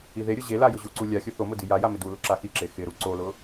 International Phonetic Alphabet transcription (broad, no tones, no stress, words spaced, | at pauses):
iðeɾʲʊ ʑela jʊʑuǀu lʲaxʲʊ θomʊ dijaja mɪdulʊ ǁaxiǁe xɪɾu ǀolʊ